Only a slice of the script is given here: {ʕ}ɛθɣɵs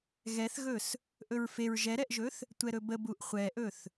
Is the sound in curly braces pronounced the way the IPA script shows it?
no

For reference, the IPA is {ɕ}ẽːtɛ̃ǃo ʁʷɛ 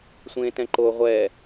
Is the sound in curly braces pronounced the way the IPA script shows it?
no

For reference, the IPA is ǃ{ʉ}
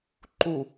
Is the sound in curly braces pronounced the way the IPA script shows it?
no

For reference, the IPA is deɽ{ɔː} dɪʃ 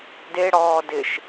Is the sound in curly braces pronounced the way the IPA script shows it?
yes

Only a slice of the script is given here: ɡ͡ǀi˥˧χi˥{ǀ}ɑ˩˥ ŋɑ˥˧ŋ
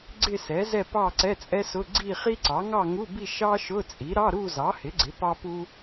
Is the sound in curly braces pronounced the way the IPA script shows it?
yes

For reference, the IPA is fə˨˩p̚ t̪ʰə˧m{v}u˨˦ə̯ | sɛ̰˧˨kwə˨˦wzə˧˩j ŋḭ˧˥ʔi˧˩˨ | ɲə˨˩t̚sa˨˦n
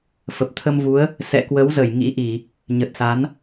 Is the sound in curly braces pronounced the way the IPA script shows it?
yes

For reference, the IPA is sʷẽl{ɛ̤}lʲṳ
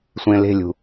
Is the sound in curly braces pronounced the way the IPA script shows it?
no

